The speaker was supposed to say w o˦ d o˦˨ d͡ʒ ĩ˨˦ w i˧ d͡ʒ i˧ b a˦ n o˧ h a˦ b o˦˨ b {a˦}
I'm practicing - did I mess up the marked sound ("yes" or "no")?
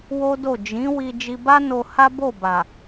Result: yes